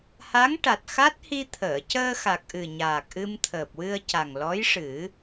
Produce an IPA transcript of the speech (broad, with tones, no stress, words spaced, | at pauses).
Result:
ha˧˥ŋʈa˨˩t̚xa˦˥t̚ hi˧t̪ʰəː˨˩˨ cəː˧xa˨˩k̚ʔɨ˨˩ ɲaː˨˩k̚ʔɨ˧mt̪ʰəː˨˩p̚ wɨ˧ə̯ca˨˩ŋlɔ˧˥jʂɨ˨˩˦